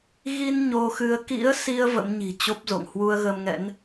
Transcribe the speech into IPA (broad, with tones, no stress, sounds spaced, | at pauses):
ɣ i˧ n ɲ o˧ x ɨ˧ ə̯ k ḭ˧˥ ə̯ s i˧ ə̯ v ə̰˧˥ m ɲ i̤˨˩ t͡ɕ o˦˥ p̚ z o̰˧˨ ŋ h w u˧ ə̯ ɣ ə˧ m ŋ ɛ̰˧˥ n